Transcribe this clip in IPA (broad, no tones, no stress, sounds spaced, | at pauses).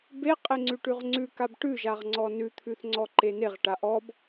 b e qʼ e ŋ͡ǀ ʉ ʈ ʉ ʁ ŋ͡ǀ ʉ k a b ʈ ʉ ʒ a ʁ ŋ͡ǀ ɔ n ʉ t̪ʰ ʉ θ ŋ͡ǀ ɔ ǃ e n e ʁ ʈ a ʔ ɔ b